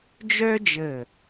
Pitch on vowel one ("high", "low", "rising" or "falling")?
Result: high